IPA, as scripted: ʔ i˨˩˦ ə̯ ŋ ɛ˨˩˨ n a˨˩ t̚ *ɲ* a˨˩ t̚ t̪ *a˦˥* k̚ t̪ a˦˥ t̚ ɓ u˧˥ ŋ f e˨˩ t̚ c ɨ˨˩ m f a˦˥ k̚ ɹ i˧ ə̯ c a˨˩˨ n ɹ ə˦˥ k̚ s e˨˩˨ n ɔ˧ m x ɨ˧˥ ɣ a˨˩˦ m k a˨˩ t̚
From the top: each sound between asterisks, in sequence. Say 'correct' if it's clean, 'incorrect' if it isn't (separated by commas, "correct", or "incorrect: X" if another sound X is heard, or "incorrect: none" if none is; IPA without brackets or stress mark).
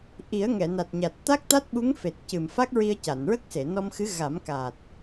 correct, correct